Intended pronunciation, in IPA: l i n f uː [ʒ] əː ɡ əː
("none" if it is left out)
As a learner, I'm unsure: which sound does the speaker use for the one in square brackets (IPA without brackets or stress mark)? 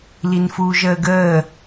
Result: ʒ